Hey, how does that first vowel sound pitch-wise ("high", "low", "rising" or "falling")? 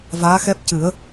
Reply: rising